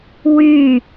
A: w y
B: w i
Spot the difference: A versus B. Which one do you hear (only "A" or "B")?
A